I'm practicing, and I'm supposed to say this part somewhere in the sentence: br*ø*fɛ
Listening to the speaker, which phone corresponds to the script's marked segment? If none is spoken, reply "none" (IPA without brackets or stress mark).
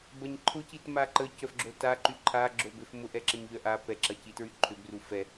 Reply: u